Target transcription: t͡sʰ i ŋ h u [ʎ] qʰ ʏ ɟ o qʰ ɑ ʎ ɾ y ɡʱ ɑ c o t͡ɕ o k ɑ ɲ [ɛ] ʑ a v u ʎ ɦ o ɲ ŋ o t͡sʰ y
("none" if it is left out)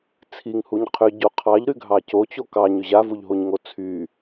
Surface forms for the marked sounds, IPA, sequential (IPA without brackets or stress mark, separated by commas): ɲ, ʏ